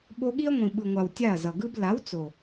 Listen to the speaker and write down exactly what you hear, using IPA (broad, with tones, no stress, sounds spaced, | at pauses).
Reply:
ɓ o˧ ɠ i˦ ɐ̯ ŋʷ ĩ˨ ɓ ɯ˨ ŋʷ a˨ w tʲ a˦˨ ɐ̯ z ʌ˨ ɡ ɯ˦ b l a˨˦ w t͡s o˨